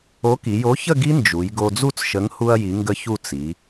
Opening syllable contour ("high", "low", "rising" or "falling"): rising